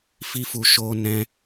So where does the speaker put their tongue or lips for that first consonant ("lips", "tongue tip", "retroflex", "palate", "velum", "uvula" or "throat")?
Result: lips